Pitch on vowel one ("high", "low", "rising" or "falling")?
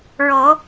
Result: low